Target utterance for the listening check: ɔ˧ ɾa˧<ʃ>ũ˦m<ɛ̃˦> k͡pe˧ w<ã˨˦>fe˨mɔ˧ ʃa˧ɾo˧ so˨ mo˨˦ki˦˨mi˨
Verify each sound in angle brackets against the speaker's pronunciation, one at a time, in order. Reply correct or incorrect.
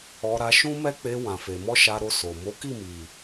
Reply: correct, incorrect, incorrect

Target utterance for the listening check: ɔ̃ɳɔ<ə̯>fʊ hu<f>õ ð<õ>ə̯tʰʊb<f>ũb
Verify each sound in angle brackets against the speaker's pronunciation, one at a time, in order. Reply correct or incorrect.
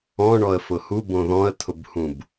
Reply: correct, incorrect, incorrect, incorrect

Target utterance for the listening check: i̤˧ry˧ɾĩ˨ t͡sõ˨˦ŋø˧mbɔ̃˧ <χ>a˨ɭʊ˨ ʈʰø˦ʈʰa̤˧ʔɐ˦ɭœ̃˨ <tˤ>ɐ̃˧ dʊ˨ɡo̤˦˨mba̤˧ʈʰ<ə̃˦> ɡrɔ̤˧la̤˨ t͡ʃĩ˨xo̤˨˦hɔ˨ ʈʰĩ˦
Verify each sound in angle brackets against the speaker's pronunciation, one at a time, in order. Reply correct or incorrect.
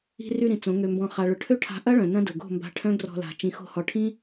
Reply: correct, incorrect, incorrect

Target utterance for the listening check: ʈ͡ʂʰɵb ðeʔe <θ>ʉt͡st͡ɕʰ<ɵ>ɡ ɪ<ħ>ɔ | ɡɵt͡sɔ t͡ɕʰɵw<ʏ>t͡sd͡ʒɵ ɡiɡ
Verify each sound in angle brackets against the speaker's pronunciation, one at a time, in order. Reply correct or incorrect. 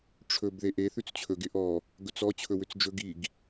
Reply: correct, correct, incorrect, correct

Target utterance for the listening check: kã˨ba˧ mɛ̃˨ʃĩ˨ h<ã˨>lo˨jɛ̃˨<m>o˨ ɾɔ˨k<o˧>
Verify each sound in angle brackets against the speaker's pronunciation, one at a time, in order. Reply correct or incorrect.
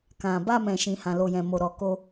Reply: correct, correct, correct

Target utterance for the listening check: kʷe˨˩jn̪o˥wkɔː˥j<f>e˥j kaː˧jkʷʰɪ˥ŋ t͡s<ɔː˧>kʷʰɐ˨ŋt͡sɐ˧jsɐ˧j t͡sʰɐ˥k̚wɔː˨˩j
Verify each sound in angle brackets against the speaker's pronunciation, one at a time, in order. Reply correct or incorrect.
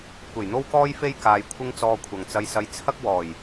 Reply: correct, correct

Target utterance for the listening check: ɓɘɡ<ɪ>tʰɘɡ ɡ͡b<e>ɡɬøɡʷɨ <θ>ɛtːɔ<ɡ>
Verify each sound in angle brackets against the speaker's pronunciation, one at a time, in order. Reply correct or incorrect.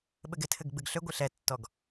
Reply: correct, incorrect, incorrect, correct

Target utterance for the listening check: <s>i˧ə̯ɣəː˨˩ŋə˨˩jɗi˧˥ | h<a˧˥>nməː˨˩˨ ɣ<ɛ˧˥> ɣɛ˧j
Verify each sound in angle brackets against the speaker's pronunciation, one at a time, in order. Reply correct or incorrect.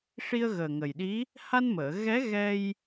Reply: incorrect, incorrect, correct

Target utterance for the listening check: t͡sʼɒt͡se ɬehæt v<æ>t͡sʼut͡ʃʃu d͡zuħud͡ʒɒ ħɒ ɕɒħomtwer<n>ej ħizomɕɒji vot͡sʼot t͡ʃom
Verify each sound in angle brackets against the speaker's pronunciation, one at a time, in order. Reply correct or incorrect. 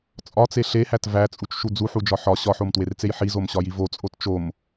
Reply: correct, incorrect

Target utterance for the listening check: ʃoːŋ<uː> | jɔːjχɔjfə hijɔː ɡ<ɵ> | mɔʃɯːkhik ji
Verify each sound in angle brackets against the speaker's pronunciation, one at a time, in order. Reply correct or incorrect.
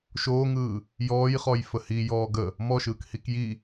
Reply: incorrect, incorrect

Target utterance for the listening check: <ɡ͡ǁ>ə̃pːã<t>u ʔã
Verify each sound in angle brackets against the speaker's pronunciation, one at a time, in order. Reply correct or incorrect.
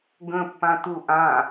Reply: incorrect, correct

